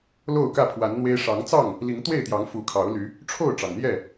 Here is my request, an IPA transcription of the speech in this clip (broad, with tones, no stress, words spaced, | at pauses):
lo˥˨ʊ̯kä˥˨pʰwa˨˦nn̪we˦ɪ̯ ʂɑ˨˦ŋt͡sɑ˥˨ŋ | li˨˦ŋ t̪we˥˨ɪ̯t̪jɑ˨˦ŋ fu˨˦kʰɑ˨˦ʊ̯ly˨˦ | ʈ͡ʂʰo˥˨ʊ̯ʈ͡ʂɑ˩ŋ n̪jɛ˥˨